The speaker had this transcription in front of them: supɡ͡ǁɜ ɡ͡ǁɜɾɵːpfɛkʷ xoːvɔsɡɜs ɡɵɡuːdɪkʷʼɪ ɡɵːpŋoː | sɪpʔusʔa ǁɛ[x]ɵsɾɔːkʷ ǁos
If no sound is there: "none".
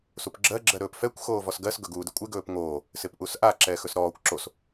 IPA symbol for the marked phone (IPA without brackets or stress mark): x